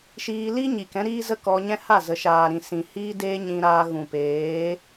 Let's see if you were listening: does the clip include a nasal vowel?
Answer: yes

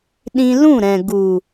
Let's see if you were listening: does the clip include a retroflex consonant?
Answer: no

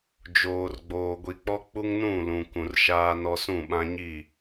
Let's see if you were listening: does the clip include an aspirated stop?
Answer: no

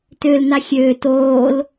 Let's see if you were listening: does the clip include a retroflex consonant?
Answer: no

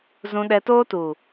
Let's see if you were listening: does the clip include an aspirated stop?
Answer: no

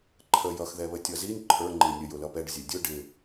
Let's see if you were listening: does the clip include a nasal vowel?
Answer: no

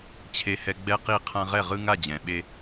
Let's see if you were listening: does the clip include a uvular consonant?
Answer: yes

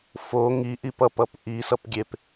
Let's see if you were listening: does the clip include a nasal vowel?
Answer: no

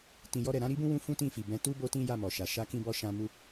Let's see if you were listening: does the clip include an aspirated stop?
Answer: no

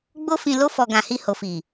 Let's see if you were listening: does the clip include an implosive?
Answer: no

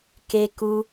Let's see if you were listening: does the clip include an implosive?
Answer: no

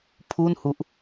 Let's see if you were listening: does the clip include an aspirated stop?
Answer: yes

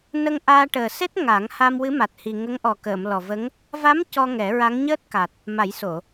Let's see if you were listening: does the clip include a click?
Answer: no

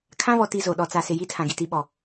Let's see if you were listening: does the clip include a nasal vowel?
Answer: yes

